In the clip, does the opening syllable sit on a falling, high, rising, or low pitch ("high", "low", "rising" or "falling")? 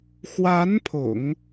rising